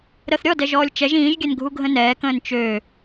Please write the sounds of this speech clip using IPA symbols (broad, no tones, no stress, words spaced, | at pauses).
ɾəθ ɾʲɔ dɛʒɔːlʲt͡ʃɛʒ ĩːʒɡʲɛnɡʱu ɡʱə̃nɛːkə̃ːn t͡ʃø